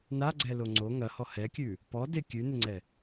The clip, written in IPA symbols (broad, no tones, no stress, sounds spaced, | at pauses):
n a ɡ͡ǀ ɛ l o ŋ͡ǀ o ŋ ɐ h ɔ h ɛ kʲ ʉ | p ɔ d ɪ kʲ ʉ n ɪ ŋ͡ǀ ɛ